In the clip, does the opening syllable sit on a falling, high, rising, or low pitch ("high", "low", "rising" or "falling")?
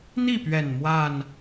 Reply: falling